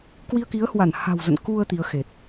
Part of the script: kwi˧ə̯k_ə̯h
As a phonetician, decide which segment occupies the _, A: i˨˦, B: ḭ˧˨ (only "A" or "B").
A